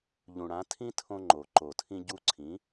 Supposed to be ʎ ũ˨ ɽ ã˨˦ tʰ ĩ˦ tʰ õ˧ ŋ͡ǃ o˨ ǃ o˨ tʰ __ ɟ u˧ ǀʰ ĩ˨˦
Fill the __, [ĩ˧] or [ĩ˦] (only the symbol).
ĩ˧